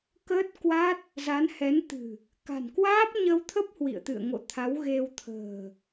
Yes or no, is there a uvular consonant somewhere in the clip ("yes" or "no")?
no